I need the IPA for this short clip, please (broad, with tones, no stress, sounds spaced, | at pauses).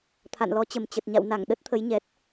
t̪ʰ a̰˧˨ n l ɔ˨˦ t͡ɕ ə˨˩ m t͡ɕ ə˨˩ t̚ ɲ a̰˧˨ w n a˧˩ ŋ ɗ ə˦˥ t̚ t̪ʰ ə˨˦ j ɲ ɛ˨˩ t̚